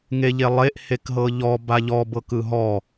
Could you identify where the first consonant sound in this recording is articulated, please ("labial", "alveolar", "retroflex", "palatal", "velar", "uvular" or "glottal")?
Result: velar